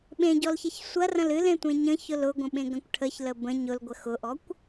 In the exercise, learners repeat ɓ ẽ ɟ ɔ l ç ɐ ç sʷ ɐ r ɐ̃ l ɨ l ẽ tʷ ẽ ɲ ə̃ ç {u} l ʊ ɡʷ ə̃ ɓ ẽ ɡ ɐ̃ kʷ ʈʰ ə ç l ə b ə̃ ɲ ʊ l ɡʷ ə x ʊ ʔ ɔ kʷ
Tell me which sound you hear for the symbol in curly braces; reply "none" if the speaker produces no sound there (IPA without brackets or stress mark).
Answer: ʊ